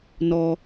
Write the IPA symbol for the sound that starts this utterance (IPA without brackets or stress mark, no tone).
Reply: n